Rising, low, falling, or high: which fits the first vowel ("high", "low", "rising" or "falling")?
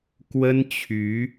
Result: high